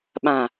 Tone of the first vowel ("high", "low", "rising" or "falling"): low